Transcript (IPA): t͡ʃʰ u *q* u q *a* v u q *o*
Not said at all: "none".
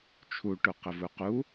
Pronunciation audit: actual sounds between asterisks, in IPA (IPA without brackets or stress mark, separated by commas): ʈ, ə, u